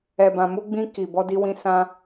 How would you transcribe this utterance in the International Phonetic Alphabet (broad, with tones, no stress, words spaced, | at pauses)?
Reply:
ɛ˨bã˨ mu˧ɡ͡bĩ˧ki˨ bɔ˧di˧wĩ˧ sã˧